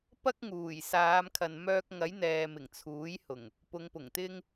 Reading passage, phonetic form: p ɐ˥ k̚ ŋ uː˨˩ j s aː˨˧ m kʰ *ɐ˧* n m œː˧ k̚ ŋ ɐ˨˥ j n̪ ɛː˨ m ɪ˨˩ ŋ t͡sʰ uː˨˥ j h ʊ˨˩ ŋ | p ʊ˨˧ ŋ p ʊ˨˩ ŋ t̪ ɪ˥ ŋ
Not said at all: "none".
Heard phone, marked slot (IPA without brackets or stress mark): ɐ˨